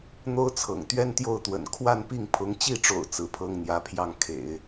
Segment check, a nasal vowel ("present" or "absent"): absent